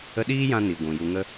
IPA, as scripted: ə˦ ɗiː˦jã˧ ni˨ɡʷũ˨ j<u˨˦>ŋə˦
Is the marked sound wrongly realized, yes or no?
yes